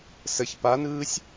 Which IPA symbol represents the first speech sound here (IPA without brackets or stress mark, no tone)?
s